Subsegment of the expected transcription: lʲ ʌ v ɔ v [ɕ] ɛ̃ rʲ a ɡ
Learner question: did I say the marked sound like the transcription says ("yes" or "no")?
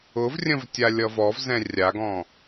no